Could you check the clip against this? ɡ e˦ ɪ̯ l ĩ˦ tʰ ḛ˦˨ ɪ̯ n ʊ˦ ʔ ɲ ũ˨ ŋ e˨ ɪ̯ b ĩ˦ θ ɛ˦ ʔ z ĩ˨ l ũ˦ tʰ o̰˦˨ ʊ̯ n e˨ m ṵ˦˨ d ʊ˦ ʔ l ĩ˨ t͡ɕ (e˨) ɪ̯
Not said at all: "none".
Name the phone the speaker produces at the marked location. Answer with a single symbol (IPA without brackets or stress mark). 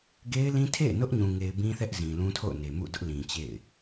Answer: ḛ˦˨